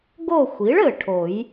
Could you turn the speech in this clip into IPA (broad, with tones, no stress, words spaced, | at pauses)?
ɡo˦˨xʷi˩˥ɭ ɘ˨˩ʈʰo˨˩˦j